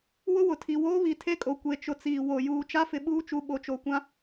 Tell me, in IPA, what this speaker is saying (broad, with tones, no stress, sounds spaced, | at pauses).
w ʊ˦ w ʊ˨ tʰ i˨ w oː˦ β i˨ tʰ e˦ kʼ o˨ kʷ e˨ t͡ʃ ʊ˨ t͡s iː˨ w o˨ j uː˨ t͡ʃ a˦ f ɪ˨ ɓ uː˦ t͡ʃ u˨ ɓ o˨˦ t͡ʃ o˨ kʷ ã˦